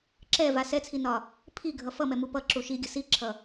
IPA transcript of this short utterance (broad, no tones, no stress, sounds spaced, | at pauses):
ǁ ɛ v a s ɛ t͡sʰ i n ɒ | pʰ i ɡʱ ʌ f ʌ m ɛ m u p ʌ ǁ u ʃ i ɡʲ ə s i ǁʰ ʌ